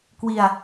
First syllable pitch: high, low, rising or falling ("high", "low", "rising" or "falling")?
low